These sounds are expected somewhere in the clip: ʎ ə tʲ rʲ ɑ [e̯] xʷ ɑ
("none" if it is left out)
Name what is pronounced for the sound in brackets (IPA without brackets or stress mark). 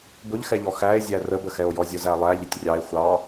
e̯